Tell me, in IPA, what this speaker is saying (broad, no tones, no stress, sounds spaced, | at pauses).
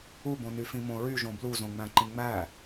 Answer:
u b õ n y f ĩ m õ ɹ y ʒ õ b l u z õ ŋ͡m æ̃ ǃ ĩ ŋ͡m æ